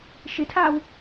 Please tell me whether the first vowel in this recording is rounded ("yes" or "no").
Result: no